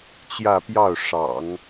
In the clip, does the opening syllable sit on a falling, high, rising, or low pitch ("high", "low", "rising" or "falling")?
falling